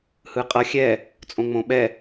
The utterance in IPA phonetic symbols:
h ɯ qʼ ʌ xʲ ɛ | t͡sʼ õ ŋ͡m õ ɓ ɛ

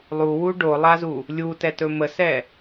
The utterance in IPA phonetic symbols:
lˠ u w u ɖ o lˠ a z u | lʲ u t ɛ t ɵ m ə s ɛ

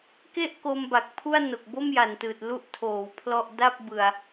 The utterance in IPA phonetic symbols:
k e˥˩ ʔ k o˧ m b a˨˩ k̚ pʰ u˥˩ a̯ n o˨˩ k̚ b o˥˩ m j a˨˩ n t ɯː˨˩ t̚ l u˥˩ ʔ tʰ oː˩˦ w pʰ l ɔ˥˩ ʔ d a˥˩ p̚ b ɯ˧ a̯

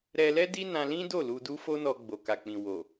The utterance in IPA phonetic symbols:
ɾ ɛ˧ l ɛ˦ d i˦ n ã˧ l ĩ˦ d o˦˨ l u˧ d u˦ f o˦ n ɔ˧ ɡ͡b o˨ k a˨ k͡p ĩ˨ w o˨

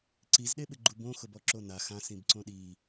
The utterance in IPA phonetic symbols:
ǀ i z ɗ e ɓ ɪ ɡ͡ǃ u b õ x ʊ b ɔ ǁ o n a x ã s ĩ b ǀ õ ɗ i

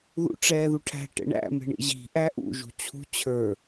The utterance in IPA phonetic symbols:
ð ṵ ʈ͡ʂ ɛː ð u ʈʰ æ̤ ʈ ɛ̰ ɳ æ̰ m ɛ̤ ɳ ḭ ʑ i̤ ʔ æ ʔ ṵ ʒ ṳ t͡ɕʰ ṳ t͡ɕʰ ə˞

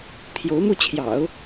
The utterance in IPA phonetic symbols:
t̪ʰ j o˧˥ ʊ̯ m u˥˩ t͡ɕʰ j ɑ̰˨˩˦ ʊ̯

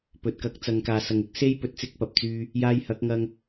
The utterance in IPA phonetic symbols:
p ɵ˨ t̚ k ɐ˨˥ k̚ t͡s ɐ˨ ŋ k aː˨ s ɐ˨ ŋ ɪ˥ k̚ s e˥ j p ɵ˨˥ t̚ t͡s ɪ˧ k̚ p ɐ˨ p̚ t͡s yː˧ | j aː˧ j h ɐ˨˥ k̚ ŋ ɐ˧ ŋ

